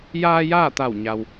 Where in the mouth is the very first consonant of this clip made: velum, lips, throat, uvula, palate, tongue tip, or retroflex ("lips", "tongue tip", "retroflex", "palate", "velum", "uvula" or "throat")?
palate